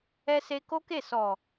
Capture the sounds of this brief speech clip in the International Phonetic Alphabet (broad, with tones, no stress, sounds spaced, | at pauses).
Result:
ɛ˧ s e˧ k o˦ k e˦˨ s ɔ˨